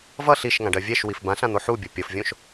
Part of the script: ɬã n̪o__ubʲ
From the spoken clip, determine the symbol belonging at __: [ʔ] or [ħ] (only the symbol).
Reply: ħ